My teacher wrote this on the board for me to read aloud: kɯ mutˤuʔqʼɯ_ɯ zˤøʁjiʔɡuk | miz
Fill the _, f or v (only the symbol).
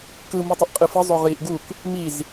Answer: f